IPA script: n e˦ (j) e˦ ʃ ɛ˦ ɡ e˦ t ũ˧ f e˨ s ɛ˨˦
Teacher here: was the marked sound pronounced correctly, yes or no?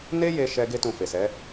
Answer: yes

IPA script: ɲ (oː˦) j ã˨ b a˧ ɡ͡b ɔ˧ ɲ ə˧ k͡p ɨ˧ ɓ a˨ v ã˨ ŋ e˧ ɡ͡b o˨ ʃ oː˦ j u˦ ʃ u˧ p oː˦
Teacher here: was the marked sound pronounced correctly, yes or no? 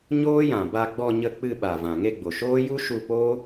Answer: yes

